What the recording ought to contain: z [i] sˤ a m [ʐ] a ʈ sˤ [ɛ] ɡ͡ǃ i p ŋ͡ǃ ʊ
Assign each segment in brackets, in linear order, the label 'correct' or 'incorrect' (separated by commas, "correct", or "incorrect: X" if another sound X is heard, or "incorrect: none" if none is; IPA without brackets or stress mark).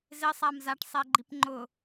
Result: incorrect: ɪ, incorrect: z, correct